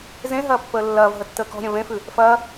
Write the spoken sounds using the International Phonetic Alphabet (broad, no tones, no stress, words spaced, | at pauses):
zẽ ɦɐːpːəːlːɐːvɦə tːəːkɔ̤ɾʲɐ̃ vẽfʉ | fɐː